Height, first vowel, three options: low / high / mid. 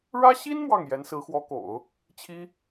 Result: low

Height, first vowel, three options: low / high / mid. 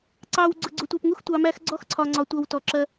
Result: low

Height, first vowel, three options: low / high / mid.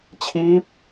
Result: high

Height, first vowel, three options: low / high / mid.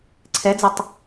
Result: mid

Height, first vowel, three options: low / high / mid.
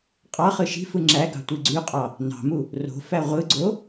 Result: low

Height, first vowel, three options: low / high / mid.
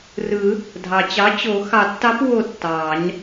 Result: high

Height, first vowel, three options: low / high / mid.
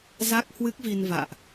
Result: low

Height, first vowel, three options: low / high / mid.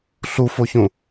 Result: high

